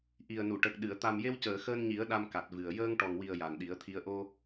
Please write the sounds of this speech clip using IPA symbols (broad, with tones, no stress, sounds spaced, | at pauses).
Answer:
ʔ i˨˩ ə̯ n u˨˩˨ ʈ ə˨˩ k̚ ɗ ɨ˨˩˨ ə̯ t̪ a˨˩ m j e˧ w c əː˨˩˨ x əː˧ n ɲ i˨˩˦ ə̯ ɗ a˧ m k a˨˩ t̚ v ɨ˨˩ ə̯ j əː˧ ŋ ʈ ɔ˨˩ ŋ w i˨˩ ə̯ j a˨˩ n ɗ i˨˩˦ ə̯ t̪ʰ i˧ ə̯ ʔ o˧